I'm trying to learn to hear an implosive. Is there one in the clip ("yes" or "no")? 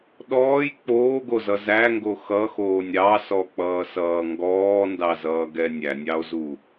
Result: yes